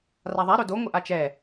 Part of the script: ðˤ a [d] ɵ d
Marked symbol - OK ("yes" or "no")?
no